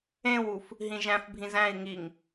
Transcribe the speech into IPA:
ẽwuf | ɦĩʒæ̃fbʱĩz æ̃i̯ ŋiŋ

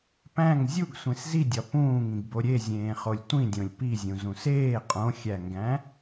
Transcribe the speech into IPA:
pæ̃ŋ zʲuɡsʷẽs zidʲɒ pũːŋĩɡbo ɾʲe zʲẽːχolʲtʷĩdʲõlʲ pizʲũ zũseː qʼõxʲæŋɡæ̃

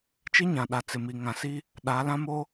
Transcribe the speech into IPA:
t͡ʃi˦ɲã˨ɗa˨ t͡sɪ˨mi˨ŋã˨ si˦ | ɗaː˨˦lã˦mo˦

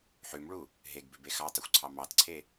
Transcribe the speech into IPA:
ħʉmɭu | ɦeɡbʉbe xɑtˤʉxʷǀʰɑ mɑtǀʰe

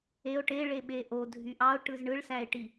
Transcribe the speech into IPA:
eo̯ ʈeɭe ɓeʔo dʱyʔɑo̯ ʈɯzɳɯɭsæe̯ʈi

